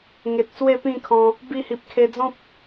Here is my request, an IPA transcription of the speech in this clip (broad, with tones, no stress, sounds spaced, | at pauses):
ŋ e˨ t̚ s w e˥˧ p ĩ˥˧ kʰ ɔ̃˧ | b i˧ h i˨ p̚ kʰ e˧ d͡z ɔ̃˦ p̚